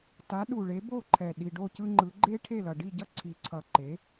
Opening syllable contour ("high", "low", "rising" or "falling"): rising